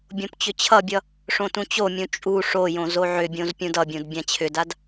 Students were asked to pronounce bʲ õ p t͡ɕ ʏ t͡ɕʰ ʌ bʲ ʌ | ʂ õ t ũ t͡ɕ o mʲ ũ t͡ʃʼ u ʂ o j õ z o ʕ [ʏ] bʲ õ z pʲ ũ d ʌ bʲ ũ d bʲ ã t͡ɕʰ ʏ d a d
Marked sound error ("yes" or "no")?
no